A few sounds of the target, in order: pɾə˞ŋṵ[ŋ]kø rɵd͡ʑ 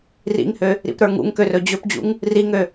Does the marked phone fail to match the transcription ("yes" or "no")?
no